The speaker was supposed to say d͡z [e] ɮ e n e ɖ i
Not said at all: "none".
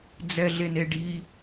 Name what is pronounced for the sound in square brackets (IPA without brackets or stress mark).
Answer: ɛ